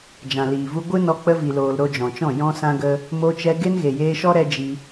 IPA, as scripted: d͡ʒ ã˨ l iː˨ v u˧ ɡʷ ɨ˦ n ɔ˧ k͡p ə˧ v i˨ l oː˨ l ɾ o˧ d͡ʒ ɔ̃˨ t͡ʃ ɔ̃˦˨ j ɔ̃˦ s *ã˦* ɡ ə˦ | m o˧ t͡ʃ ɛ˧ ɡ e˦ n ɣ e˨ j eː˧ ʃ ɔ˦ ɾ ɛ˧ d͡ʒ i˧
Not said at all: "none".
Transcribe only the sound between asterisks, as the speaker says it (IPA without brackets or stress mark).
ã˦